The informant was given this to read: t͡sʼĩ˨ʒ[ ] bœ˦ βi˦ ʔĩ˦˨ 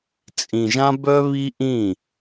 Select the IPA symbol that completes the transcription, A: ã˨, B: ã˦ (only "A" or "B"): B